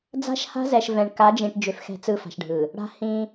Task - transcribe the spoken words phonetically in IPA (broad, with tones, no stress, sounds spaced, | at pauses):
d͡z a̤˦ ʃ h a̤˦ z ɛ˨ ʃ v ɛ̃˨ ɳ k a˨˦ d͡ʒ ĩ˨ ʈ d͡ʒ ʏ˨ f x ɛ̤˨ t͡s ɯ˦ f a̤˨ ʃ ɖʱ ɯ˨ | ɽ a̤˦ h ĩ˦